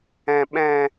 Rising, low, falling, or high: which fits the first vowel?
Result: low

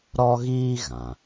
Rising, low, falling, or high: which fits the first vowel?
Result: high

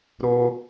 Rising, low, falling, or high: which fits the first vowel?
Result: high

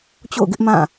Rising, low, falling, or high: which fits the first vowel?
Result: falling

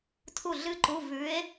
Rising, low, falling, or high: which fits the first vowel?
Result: falling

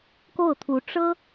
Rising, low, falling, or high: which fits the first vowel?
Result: falling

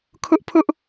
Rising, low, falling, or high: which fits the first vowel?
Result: high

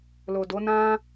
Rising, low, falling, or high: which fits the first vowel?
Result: low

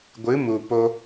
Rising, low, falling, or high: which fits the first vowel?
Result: rising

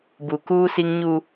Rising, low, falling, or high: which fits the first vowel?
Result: low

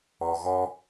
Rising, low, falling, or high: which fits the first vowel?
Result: low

